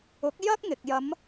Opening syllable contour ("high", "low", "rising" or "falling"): rising